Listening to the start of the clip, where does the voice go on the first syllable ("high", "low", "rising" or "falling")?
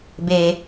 high